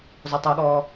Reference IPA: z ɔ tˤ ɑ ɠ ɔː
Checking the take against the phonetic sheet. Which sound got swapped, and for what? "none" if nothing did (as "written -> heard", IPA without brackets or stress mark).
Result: ɑ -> a